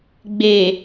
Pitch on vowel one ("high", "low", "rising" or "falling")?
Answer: low